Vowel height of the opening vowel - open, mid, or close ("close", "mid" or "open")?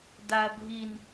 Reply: open